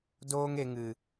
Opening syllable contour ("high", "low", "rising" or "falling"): high